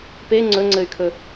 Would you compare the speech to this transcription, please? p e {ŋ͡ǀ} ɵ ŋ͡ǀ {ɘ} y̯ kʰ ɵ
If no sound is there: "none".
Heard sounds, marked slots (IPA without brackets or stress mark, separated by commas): ŋ͡ǀ, ɘ